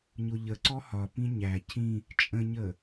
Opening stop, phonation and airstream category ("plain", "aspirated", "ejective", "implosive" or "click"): click